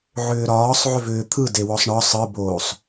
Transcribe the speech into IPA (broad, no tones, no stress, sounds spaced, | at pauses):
ʕ ʏː ɾ ɒː sˤ ʕ ʏ v ʏː t̪ʰ ɯ d e w ɔ sˤ ɳ ɒ sˤ ɯ b oː sˤ